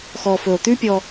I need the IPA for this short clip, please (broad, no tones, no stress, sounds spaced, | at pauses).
x ɔː f ɵ o̯ t̪ ʉ pʲ ɔ